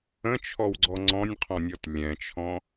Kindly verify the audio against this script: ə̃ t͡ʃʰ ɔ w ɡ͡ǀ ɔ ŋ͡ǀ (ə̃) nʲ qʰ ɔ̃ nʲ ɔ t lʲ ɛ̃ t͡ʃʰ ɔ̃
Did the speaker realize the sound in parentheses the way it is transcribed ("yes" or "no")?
no